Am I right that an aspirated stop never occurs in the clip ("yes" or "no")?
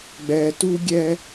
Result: yes